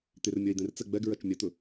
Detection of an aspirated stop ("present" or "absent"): absent